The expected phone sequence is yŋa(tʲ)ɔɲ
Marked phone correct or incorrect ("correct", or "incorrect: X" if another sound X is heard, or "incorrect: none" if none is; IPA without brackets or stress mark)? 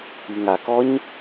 incorrect: k